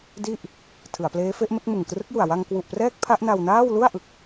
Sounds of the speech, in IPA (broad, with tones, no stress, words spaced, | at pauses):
di˥˩ʔ | tʰɯ˩˦a̯pleː˦˥fe˦˥ʔme˦˥k̚ mɯ˨˩ŋkrɯ˦˥k̚ju˨˩a̯ wa˧ŋkwu˨˩ʔprɛː˦˥k̚ pʰa˦˥ʔna˧wnaː˥˩w lu˥˩a̯ʔɯ˨˩k̚